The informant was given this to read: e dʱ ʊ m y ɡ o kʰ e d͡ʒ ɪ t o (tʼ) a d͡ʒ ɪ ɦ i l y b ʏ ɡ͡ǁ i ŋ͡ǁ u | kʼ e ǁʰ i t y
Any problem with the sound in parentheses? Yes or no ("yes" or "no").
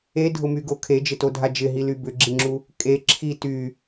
yes